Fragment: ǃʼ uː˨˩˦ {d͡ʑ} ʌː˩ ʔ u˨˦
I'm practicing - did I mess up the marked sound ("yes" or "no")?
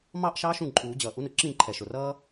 no